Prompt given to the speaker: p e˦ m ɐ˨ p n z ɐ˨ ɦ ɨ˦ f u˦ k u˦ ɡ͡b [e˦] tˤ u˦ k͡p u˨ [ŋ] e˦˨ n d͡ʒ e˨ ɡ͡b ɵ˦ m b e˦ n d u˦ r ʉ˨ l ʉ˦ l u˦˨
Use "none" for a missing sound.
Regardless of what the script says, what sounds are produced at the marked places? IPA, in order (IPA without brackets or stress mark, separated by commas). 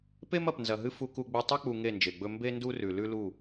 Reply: e˦, ŋ